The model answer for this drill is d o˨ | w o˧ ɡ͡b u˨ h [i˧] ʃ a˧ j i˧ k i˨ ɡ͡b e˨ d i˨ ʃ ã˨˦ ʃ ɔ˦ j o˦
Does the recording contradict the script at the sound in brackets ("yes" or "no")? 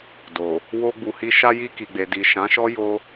no